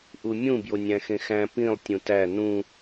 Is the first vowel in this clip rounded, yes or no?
yes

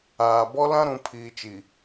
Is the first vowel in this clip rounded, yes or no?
no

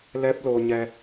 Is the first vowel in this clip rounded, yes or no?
no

